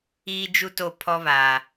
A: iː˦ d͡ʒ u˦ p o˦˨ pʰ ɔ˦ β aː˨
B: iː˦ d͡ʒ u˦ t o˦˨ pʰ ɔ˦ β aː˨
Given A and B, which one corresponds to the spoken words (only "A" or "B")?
B